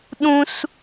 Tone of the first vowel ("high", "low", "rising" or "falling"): high